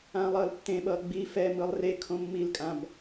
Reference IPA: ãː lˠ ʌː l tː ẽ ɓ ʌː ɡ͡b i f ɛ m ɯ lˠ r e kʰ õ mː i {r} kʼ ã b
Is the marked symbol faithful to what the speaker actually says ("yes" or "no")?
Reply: no